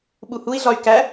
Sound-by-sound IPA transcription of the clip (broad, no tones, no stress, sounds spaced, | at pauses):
ɓ u h u i̯ ɮ ɒ y̯ k æ